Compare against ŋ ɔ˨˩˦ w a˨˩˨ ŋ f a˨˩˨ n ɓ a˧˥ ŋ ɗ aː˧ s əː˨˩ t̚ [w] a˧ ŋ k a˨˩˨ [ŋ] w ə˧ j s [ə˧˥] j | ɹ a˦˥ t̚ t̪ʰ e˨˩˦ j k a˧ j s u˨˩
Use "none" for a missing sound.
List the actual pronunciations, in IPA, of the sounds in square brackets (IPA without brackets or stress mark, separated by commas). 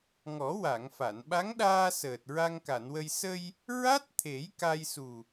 ɹ, n, ə˧